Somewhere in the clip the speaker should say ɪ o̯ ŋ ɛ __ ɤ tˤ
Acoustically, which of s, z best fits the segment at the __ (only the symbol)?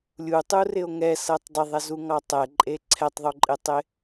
s